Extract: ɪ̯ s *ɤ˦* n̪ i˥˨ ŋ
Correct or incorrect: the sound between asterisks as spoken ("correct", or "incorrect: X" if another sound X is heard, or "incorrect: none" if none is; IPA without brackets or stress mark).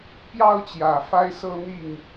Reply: correct